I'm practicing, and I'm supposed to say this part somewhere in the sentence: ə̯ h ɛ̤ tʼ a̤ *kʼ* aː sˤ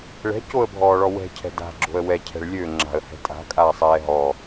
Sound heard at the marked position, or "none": kʼ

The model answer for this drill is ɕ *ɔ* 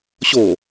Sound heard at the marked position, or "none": o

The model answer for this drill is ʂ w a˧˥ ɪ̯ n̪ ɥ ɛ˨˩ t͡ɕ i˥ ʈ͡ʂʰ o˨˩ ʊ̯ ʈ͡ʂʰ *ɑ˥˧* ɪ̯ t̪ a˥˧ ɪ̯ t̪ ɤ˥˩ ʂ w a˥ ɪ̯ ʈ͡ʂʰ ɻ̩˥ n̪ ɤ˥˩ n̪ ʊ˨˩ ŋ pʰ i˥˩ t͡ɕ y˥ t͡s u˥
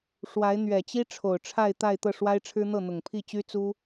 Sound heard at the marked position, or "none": a˥˧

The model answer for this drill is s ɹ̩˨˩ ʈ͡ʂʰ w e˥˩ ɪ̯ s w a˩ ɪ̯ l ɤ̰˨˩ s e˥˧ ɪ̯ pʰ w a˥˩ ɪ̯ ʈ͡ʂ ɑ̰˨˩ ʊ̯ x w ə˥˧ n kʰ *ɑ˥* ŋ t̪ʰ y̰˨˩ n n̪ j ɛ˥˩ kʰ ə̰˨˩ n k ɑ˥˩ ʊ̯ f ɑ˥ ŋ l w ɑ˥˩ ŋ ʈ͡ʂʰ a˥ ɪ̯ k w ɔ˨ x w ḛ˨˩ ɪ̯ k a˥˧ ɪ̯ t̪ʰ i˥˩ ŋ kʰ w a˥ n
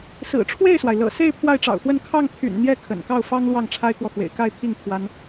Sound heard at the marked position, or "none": ɑ˥˩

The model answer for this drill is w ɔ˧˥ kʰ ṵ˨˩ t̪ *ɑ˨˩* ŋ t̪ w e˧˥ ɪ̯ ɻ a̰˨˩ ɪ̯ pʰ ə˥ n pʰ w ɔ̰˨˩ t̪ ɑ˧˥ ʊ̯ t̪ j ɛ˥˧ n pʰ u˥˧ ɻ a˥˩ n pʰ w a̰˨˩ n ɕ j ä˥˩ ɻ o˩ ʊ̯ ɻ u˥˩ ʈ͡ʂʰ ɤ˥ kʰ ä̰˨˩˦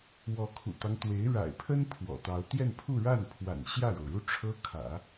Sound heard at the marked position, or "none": ɑ˦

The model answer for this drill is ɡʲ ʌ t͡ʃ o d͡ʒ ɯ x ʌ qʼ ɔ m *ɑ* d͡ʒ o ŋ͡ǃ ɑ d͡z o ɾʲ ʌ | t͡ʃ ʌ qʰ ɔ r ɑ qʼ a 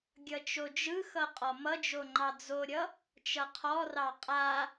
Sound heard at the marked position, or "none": ʌ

